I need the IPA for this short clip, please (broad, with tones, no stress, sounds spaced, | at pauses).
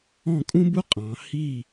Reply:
ɔ̃˥˩ kʼ ũ˥ b u˥ qʼ ɑ̃˩˧ h i˥˩